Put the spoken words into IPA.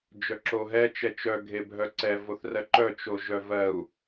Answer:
d͡ʒ œ ǁ o ɦ ɛ t͡ʃ ɛ t͡ʃ œ ɡʱ e bʱ œ ǀ ɛ v o θ r ɜ ǃ œ t͡ʃ o ʒ œ v ɜ u̯

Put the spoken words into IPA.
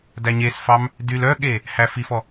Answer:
d æ ɲ e s f ɑ m | d y l œ ɠ e | h æ f i f ɔ

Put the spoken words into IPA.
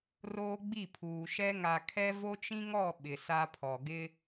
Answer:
r oː˦ ɡ͡b i˦˨ pʰ uː˨ ʃ ɛ˦ ŋ a˨ kʰ ɛ˦ v o˦ t͡ʃ ĩ˦ ŋ ɔ˦˨ ɓ ɪ˨ s a˦ pʰ ɔ˨ ɡ ɪ˦

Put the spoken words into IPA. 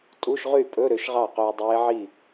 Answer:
tʼ u˧˥˧ ʃ ʁ y˥˩ pʼ ɵ˧˥˧ ɾ ø˨˥ ʃ ʁ ɑ˥˩ q ɵː˧ dˤ eː˦˥ ʕ i˥˩

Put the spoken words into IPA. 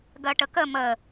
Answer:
ɡ ɜ ʈ ə k ə m ə

